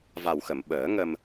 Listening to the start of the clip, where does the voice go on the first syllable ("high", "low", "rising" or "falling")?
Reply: low